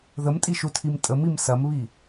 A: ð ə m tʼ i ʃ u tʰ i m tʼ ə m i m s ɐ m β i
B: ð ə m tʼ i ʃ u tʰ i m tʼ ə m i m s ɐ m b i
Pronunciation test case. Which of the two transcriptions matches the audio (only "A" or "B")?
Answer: A